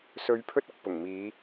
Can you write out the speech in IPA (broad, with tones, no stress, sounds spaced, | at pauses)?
s ɵ˨˧ ɥ pʰ ɵ˧ t̚ ɐ˨ k̚ p ʊ˨˩ ŋ m iː˨˧